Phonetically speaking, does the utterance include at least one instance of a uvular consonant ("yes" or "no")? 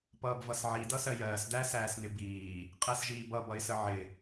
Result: yes